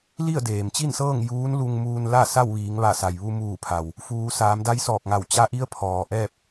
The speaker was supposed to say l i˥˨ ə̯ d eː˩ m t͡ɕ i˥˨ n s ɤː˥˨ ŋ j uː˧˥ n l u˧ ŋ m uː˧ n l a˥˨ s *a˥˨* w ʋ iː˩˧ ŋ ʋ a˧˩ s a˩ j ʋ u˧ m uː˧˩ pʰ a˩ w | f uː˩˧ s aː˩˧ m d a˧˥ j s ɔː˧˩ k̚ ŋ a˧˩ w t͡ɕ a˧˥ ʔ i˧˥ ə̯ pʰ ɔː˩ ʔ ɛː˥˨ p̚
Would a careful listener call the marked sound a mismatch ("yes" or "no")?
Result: no